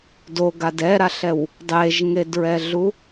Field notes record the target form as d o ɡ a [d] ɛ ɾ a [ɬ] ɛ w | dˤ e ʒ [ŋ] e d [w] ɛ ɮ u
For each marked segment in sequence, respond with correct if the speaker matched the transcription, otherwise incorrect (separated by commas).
correct, correct, correct, incorrect